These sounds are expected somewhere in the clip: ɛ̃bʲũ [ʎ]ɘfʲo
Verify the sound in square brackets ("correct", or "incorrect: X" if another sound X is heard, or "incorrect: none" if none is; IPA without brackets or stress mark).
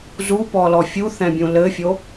incorrect: l